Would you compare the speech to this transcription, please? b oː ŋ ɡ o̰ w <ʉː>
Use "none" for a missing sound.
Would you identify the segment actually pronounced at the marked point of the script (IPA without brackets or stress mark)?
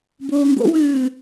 ʉː